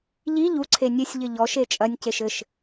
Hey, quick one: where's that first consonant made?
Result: palate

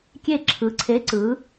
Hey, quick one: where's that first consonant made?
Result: velum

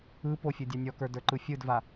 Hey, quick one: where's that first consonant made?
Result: lips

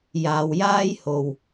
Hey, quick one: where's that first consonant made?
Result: palate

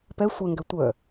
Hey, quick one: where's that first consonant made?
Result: lips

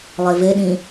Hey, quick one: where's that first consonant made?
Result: tongue tip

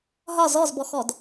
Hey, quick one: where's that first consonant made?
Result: throat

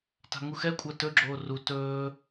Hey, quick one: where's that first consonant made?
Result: tongue tip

